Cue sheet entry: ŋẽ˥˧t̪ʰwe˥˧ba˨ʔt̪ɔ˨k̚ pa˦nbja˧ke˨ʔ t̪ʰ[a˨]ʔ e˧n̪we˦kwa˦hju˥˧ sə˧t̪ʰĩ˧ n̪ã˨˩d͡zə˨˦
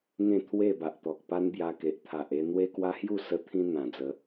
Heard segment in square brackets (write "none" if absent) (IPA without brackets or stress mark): a˨